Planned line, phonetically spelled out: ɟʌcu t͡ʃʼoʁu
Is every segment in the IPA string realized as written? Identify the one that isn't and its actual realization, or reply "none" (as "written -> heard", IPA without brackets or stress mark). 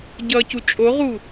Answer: none